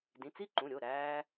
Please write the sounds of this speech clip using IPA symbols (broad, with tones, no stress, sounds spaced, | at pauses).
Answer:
d ĩ˩˧˩ t͡s i˥˧ ǃ ũ˩˧˩ ɾʲ o˩˧˩ ɾ æː˧